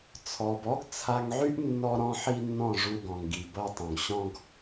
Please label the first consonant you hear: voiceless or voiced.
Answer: voiceless